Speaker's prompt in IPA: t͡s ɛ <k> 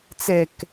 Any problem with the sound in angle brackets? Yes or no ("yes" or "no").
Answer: no